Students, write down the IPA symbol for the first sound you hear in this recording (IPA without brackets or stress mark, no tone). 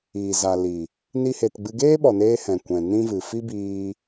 iː